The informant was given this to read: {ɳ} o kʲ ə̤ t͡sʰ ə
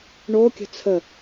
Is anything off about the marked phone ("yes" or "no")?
no